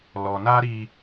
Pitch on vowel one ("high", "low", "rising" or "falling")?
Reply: low